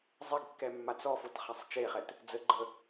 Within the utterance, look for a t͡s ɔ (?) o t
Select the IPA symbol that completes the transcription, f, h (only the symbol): f